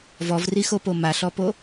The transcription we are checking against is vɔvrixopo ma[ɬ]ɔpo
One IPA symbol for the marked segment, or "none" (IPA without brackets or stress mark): ɬ